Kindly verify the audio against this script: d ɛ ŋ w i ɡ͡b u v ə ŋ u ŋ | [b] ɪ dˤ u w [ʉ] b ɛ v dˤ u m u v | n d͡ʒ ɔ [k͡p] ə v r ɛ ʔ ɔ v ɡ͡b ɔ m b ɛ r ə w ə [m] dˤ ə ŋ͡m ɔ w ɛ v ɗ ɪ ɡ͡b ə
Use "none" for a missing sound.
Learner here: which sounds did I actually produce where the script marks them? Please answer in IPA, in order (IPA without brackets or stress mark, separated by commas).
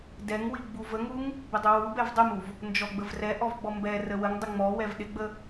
b, u, ɡ͡b, ŋ